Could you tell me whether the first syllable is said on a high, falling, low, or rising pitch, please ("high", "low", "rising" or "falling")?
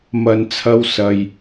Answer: low